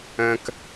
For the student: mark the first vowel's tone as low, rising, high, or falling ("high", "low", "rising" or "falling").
high